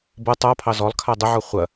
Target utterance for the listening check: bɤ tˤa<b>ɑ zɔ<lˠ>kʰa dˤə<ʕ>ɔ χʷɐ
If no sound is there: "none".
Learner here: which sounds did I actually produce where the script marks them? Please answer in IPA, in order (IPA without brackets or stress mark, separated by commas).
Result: pʰ, lˠ, ʕ